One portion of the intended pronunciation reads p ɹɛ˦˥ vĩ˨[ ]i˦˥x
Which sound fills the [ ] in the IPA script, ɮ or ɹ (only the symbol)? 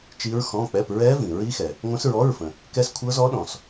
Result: ɹ